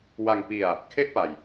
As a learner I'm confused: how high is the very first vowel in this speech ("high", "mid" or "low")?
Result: low